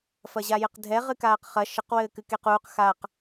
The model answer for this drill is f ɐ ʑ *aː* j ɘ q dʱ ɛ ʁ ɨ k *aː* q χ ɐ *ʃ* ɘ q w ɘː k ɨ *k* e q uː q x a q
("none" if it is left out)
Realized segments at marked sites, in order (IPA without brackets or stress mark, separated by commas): a, aː, ʃ, k